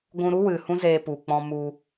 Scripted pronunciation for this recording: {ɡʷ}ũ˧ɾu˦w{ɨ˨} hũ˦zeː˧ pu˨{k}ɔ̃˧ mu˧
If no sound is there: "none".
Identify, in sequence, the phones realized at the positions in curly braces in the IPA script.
ɡʷ, ɨ˨, k͡p

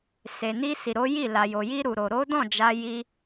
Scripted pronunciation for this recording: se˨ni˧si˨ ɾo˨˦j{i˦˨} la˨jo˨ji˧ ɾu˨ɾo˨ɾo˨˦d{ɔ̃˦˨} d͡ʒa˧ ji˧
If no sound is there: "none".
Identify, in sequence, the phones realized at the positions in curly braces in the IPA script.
i˦˨, ɔ̃˦˨

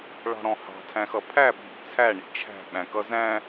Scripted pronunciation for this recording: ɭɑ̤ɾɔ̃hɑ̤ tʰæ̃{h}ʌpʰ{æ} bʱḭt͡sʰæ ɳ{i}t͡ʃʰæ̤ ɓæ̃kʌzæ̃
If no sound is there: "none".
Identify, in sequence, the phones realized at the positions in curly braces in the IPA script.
x, æ, ḭ

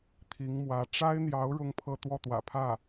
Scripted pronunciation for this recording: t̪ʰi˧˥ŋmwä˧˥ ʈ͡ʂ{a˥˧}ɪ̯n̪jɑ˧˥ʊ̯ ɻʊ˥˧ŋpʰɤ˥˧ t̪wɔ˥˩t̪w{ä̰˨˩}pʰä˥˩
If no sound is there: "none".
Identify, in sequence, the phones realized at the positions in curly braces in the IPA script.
a˥, ä̰˨˩

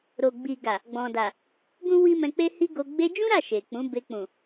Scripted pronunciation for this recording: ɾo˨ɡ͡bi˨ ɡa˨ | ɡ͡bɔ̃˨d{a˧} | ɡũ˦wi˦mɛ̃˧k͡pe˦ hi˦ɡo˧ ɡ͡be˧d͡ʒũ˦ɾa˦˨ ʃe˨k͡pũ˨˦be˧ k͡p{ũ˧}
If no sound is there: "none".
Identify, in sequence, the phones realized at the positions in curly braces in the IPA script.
a˨, ũ˨

